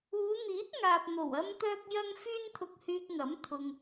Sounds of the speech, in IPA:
uː˨˧n̪iː˨˥t̚ ŋaː˨p̚ n̪o˨˩wɐ˥mt̪œː˥k̚jɐ˥ŋ fyː˥nt̪ʰʊ˧k̚hyː˧k̚ŋɐ˨˥m t̪ʰʊ˨ŋ

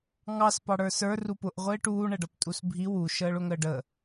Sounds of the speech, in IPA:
ŋɑs pɑɽə˞sə˞ rupʊʔ ʁʷɪːʈuː ɳɛɖʌptʼusbʱi wu ʃəːɭʊŋəːɖə

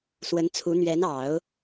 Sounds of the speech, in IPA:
swə˧˥nt͡sʰu˧˥ n̪ɥɛ˧˥nɑ˨˩˦ʊ̯

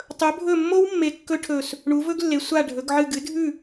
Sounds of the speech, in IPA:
tˤɵ˨˦bʱɵ˦˨mːo˦˥wmːe˨˦ kːɵ˦˥ʈʰɵ˦˨s | ɳu˨˦vɵ˦˥ɡlːe˨˦ sʷa˦˨ ɖʱɵ˨˦ɡʕɨ˦˨ ɡɨ˨˦dʱʉ˦˨

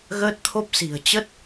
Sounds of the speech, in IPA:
ɣəː˦˥t̚t̪ʰo˦˥p̚si̤˨˩ə̯ t͡ɕə˦˥t̚

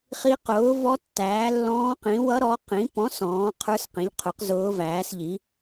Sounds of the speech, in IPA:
χi˧˥ qʊː˩˥ vɔ˧˥tːæː˩˥lːɔ̃ː˧˥qĩ˩˥ wʌ˧˥ɾɔ˩˥ qĩ˩˥ pɔ̃˩˥ sɔ̃ː˩˥qʰə˞˧˥sqĩ˩˥ʎqʰʊ˩˥q zʊː˧˥væː˩˥sʎi˩˥

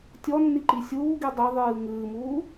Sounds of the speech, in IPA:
tʲɔnːiǃi sʲuː ɡidˤe ðˤɨːŋɨːmuː

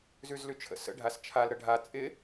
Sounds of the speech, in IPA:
zʉzlʉt͡ʃʰə̰sə̰ ɖʱast͡ʃʰal ɾəɖʱa t͡sʼɪ

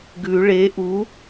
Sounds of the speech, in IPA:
ɡʉ ɭe ʔu

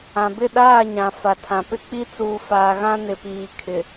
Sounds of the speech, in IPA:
ã˨ bɪ˦˨ɗaː˦˨ ɲã˨fa˨tʰã˨ pɪ˦k͡pi˦t͡suː˨ faː˨ɣã˦ nɪ˨piː˨kʰɪ˨

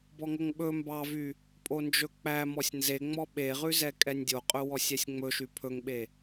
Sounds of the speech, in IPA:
bɔŋoŋɓɵ mbɑvy | pʼond͡ʒɵk͡pæ mɔsʲnzeŋ͡mɔ ɓeʁʉzɛ kʼɛnʲdʲoqʼɵ wɔsʲɛsʲŋ͡mɵʃy pʰɵŋɓe

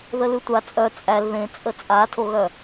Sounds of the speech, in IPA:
ðəlʉtʷa t͡sʼœ t͡sʼæl ðẽt͡sʼə t͡sʼatʰoɣœ

